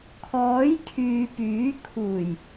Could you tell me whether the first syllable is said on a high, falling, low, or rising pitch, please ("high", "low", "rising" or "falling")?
rising